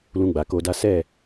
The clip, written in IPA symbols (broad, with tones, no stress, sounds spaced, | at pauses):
l ũ˧ ɡ͡b a˨ k o˧ d a˦ s ɛ˦˨